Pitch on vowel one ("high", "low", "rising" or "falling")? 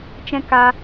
high